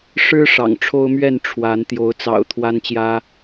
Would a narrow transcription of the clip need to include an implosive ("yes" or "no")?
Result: no